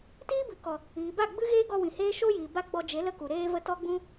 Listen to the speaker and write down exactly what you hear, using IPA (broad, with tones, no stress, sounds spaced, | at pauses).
t iː˦ b ɨ˨ k ɔ˨ | iː˨ b a˦˨ ɡ͡b ɨ˦ ɣ eː˦ ɡ ɔ˧ w ĩ˨ h eː˦ ʃ o˦ j iː˨ b a˦ ɡ͡b ɔ˧ d͡ʒ e˨˦ l ə˦ k u˨ ɾ eː˦ v ə˦ t ɔ˦ ɡ͡b ũ˦